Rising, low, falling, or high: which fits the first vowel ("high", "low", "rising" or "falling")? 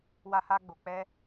high